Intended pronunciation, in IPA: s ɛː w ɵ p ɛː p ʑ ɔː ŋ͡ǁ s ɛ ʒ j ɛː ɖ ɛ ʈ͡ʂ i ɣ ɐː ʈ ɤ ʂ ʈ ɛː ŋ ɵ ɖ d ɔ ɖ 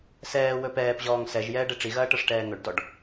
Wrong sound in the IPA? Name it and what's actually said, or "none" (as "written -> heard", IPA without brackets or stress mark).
ŋ͡ǁ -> ŋ